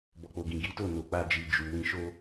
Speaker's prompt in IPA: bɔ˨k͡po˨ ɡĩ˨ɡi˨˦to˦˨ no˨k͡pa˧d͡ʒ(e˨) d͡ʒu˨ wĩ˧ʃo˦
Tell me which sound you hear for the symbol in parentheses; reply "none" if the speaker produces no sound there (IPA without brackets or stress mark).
i˨